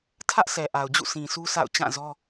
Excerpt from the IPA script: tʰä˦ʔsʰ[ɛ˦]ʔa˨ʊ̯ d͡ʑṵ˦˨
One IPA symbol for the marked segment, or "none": ɛ˨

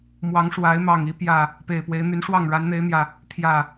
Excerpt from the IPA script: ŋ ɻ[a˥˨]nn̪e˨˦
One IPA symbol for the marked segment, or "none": a˨˦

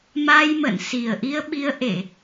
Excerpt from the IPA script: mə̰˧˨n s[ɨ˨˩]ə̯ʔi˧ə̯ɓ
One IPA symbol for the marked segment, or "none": i˨˩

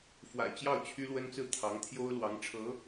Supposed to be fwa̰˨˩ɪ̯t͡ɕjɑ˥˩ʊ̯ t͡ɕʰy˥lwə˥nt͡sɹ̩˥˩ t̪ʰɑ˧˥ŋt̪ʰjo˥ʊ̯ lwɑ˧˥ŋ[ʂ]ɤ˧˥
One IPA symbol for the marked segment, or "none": ʈ͡ʂʰ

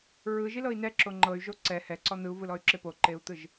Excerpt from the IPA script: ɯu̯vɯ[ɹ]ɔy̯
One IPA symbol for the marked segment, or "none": l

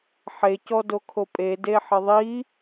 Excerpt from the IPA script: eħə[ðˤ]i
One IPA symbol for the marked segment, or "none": ðˤ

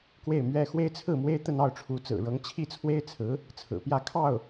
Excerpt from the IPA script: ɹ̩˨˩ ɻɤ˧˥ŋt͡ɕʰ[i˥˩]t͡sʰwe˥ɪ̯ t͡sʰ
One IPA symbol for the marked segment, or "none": i˥˩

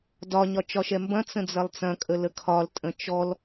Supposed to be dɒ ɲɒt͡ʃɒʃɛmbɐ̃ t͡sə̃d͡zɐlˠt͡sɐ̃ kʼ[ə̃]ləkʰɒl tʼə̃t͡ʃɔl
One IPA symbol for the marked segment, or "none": ə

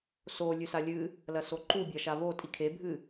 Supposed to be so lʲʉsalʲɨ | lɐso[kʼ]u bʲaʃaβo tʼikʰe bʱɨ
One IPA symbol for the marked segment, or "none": ǃ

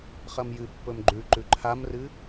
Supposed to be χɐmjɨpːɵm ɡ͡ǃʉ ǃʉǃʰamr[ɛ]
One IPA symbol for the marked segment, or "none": ɨ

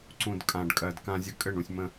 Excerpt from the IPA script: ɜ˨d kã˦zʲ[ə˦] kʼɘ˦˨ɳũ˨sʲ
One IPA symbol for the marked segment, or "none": ə˦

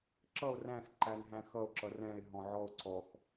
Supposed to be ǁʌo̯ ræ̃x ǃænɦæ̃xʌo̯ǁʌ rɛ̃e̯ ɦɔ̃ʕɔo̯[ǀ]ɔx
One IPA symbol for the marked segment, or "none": ǀ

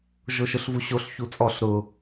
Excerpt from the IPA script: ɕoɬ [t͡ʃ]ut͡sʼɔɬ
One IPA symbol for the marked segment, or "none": ç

